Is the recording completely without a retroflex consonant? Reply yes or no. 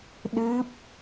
yes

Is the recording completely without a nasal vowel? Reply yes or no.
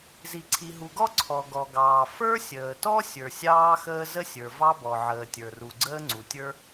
yes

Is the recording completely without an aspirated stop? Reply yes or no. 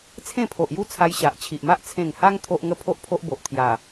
no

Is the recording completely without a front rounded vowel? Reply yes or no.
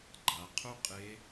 no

